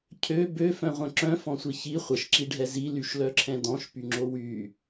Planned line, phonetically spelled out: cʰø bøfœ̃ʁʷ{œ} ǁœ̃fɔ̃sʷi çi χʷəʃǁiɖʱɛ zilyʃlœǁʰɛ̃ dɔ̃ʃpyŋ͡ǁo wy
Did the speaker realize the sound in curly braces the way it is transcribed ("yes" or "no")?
no